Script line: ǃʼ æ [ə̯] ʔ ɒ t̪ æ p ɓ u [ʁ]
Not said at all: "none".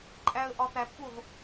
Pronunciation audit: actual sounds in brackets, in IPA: ə̯, ʁ

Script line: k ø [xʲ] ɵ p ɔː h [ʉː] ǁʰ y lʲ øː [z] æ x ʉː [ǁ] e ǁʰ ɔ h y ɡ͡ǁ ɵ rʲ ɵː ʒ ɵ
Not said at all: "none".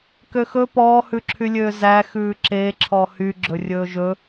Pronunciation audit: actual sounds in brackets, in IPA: x, ʉ, z, ǁ

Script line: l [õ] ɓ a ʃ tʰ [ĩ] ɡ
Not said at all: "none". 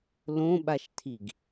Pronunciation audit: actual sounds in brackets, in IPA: õ, i

